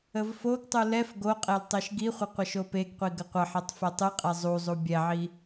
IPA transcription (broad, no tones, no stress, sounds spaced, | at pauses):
ə v f o ɡ tˤ u l ɛ f ɡ o qʼ ɛ l tˤ e ʃ ɡ i χʷ ə qʷ ə ʃ o p e ɡ qʷ i ɡ ə qʷ ə ħ e tˤ f ɛ tˤ ɨ qʼ ɛ zˤ u zˤ u bʲ ɛ ʕ i